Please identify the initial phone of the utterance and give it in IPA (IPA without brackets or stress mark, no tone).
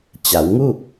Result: t͡ɕ